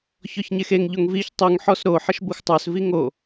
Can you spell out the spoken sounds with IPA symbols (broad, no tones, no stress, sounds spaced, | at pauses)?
ç ɔ ç ɲ e x e ŋ ʎ o ŋ v i ç tˤ u ŋ ħ ɔ s ɾ o ħ ə ʃ b u x tˤ ə˞ s v i ŋ o